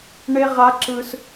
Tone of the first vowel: high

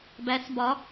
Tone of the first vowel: rising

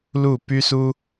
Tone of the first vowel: falling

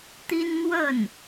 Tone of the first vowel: high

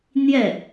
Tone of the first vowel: falling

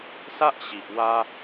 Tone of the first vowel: high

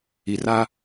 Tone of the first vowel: low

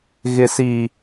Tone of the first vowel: low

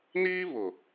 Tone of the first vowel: high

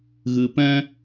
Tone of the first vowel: low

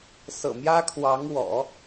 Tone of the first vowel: low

